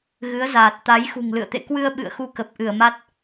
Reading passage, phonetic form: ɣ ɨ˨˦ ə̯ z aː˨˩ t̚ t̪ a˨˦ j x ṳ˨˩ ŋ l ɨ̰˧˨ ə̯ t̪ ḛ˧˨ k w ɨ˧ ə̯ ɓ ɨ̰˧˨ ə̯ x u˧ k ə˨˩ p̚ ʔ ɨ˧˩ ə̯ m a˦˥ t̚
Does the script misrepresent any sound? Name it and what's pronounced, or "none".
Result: none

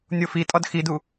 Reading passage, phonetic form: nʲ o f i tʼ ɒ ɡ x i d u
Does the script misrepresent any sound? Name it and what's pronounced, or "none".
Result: ɡ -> d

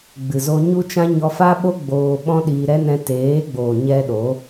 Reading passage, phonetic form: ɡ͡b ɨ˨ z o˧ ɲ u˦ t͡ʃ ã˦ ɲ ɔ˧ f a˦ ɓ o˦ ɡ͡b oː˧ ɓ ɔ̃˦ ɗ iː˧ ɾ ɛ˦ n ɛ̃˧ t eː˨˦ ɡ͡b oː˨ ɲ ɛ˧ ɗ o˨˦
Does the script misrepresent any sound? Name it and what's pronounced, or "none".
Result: none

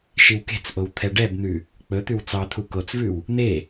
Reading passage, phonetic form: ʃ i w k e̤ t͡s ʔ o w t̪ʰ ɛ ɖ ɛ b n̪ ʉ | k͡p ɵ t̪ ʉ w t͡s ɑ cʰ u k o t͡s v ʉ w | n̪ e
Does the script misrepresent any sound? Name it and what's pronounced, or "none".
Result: cʰ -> t̪ʰ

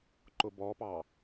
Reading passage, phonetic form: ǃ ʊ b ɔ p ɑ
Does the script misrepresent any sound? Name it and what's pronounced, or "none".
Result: none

